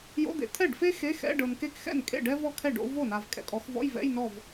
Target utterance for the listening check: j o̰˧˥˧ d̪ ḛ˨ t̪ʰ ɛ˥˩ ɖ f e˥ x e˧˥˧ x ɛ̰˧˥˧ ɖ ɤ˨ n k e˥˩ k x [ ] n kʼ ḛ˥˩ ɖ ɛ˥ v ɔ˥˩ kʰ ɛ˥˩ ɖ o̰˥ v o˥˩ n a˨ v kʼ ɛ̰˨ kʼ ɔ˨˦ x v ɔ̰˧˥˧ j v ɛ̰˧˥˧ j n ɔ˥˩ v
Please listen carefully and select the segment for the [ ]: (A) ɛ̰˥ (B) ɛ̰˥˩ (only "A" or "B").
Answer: B